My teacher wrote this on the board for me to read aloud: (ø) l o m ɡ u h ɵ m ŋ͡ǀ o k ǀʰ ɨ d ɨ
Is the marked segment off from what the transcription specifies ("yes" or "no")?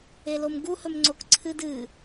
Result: yes